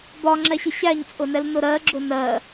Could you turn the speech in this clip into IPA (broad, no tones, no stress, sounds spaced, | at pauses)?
b ɒ ŋ͡ǁ ɛ ɕ ɪ ɕ æ ɲ t͡sʼ ʊ n ɛ l n ʊ ɾ ɜ ɡ͡ǁ ʊ n ɜ